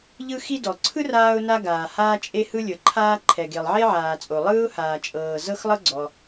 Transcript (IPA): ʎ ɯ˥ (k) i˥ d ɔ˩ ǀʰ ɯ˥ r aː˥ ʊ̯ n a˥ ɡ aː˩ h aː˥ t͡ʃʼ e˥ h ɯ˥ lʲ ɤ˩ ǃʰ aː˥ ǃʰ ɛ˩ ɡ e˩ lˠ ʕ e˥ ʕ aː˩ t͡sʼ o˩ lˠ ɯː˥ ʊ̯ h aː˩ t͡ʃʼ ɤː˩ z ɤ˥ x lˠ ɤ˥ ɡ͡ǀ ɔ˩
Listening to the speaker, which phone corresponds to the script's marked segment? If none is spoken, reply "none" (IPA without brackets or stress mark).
x